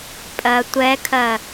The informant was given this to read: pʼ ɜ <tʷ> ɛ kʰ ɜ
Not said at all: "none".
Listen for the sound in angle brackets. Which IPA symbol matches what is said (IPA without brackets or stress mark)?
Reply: tʷ